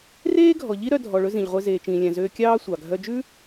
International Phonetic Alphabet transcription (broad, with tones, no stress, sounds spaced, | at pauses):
r eː˥ ɡʱ ɔ˩ ʎ i˥ ɾ œ˧ dʱ ɔ˩ ɭ ɵ˧ z ĩ˩ ʎ ʁʷ e˧ z eː˩ t͡ʃ ĩː˩ lʲ æ̃˩ z øː˧ kʲ ɑː˥ sʷ ɑ˩ ɡʱ œ˧ d͡ʒ ʉ˥